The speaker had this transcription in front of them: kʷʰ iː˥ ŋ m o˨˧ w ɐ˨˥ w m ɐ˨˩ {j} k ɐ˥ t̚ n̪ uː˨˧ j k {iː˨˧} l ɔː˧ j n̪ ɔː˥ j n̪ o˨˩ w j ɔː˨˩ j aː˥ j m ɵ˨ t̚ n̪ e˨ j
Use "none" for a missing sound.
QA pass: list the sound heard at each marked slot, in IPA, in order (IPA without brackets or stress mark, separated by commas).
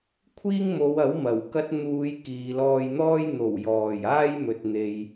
w, iː˨